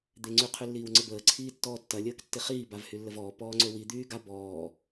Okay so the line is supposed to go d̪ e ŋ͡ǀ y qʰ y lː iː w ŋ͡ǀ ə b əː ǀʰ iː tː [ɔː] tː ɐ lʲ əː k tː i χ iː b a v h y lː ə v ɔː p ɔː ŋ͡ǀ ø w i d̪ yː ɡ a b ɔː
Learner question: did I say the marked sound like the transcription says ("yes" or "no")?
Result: yes